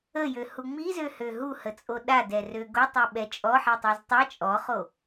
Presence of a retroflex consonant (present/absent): absent